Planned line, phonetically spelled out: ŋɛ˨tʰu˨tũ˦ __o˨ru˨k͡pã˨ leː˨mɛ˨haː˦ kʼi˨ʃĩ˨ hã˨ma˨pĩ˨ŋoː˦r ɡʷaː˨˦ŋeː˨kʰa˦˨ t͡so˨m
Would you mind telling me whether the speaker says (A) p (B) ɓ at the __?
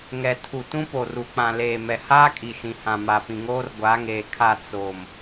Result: A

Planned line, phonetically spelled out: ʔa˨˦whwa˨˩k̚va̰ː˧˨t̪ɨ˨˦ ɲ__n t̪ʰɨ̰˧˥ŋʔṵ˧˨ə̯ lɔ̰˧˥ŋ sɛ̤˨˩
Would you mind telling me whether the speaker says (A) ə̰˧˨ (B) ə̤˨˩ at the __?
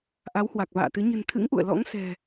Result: B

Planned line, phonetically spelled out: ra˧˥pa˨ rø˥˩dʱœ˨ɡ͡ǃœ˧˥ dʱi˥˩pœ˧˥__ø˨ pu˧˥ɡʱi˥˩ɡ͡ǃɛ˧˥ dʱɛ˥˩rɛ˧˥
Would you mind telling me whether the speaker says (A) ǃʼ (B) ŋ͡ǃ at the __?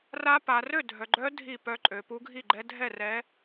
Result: A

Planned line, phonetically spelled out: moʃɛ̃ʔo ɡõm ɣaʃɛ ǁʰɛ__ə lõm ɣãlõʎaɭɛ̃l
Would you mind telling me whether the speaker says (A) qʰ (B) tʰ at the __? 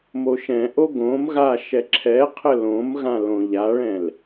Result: A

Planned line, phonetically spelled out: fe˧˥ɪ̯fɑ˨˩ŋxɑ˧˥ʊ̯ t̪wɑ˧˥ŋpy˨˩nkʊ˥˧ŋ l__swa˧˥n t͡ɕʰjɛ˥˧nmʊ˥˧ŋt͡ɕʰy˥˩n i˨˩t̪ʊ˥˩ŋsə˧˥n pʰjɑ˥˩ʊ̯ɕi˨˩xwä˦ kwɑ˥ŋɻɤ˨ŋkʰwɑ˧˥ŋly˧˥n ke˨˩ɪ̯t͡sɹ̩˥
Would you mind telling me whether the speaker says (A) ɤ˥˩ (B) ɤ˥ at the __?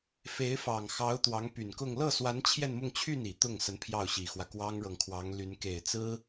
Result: A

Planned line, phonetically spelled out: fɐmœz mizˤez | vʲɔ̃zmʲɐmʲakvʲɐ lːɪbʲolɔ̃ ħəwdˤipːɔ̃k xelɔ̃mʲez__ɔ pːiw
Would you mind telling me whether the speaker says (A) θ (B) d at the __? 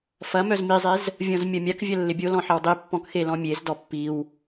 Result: B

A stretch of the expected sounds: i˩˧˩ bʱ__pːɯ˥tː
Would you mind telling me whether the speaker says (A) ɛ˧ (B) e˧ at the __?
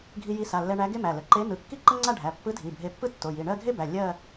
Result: B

